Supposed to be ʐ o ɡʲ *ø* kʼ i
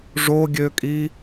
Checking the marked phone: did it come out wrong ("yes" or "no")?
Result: no